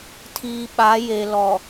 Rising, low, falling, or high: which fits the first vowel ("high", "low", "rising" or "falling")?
low